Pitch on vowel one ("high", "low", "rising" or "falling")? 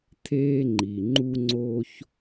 high